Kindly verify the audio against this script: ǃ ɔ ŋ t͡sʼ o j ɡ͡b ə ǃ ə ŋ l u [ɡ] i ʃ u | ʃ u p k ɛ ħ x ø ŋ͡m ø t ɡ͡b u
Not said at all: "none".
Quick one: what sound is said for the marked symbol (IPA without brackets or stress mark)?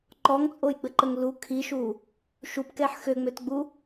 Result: kʰ